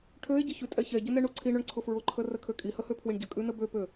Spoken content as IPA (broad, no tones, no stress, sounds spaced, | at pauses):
ʈʰ ø e̯ ɟ ə ç ʉ tʼ ɛ ç ɛ ɟ ʊ n ɛ ɳ u ǀʰ i ɳ ø ɳ ǀʰ ʊ f ɹ ʊ ǃʰ ə r ə kʰ ø kʼ i h ə h ø pʰ w i ɳ ɟ ə kʼ ʉ n ə b ø p ø